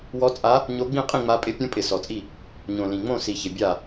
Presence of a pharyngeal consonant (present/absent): absent